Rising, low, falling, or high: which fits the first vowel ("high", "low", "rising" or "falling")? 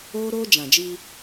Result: high